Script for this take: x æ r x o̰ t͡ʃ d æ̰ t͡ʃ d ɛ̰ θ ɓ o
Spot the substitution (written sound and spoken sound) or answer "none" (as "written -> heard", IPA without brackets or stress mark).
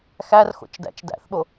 ɛ̰ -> æ̰